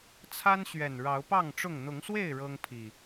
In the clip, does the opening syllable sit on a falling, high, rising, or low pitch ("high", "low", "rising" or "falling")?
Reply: high